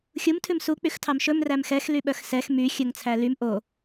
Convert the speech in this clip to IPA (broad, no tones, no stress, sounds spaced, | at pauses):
xʲ u m tʰ ʉ m s u k͡p y x tʰ ɑ m ʃ ɵ m r æ m x ɛ x l y ɓ œ x s ɛ x m y xʲ ɵ ŋ t͡sʰ æ l y m ʔ o